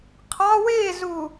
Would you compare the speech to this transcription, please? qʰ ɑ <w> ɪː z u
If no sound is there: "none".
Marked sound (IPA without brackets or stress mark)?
w